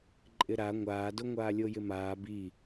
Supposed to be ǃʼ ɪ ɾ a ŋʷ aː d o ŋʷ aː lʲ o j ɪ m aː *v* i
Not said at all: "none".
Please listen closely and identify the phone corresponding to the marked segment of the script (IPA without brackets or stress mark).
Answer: b